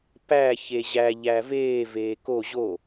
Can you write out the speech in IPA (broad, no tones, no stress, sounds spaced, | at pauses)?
p æ ç e ʑ æ ʎ æ v eː v eː k o ʑ o